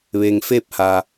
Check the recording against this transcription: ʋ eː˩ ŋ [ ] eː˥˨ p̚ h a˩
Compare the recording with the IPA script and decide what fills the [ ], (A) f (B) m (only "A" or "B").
A